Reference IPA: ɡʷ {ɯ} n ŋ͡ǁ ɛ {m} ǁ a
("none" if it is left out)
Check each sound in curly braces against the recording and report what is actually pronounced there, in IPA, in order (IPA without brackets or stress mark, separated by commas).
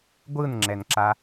ɯ, n